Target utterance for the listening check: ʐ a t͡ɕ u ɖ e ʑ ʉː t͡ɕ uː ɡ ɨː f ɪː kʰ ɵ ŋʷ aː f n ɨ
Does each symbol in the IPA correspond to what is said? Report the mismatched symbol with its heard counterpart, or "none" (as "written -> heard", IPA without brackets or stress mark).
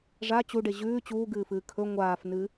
ɪː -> ɨː